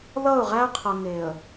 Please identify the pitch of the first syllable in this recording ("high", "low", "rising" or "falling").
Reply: falling